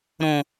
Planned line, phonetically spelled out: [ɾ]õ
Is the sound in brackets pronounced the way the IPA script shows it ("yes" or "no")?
yes